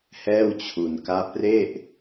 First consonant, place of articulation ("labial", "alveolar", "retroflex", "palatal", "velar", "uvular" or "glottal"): glottal